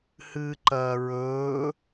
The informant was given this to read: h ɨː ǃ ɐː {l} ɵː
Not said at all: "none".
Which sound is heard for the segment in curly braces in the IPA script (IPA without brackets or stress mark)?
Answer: ɹ